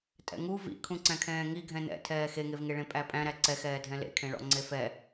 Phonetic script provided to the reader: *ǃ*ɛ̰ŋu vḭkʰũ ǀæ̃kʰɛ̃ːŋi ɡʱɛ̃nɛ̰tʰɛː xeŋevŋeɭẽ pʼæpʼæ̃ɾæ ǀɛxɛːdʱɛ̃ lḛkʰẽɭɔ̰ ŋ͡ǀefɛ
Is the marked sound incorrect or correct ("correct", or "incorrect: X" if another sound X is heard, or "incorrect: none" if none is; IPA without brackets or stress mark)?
incorrect: tʼ